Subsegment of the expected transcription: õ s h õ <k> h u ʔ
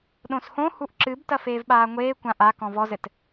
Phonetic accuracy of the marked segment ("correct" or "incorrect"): incorrect